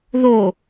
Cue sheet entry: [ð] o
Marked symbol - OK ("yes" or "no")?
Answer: yes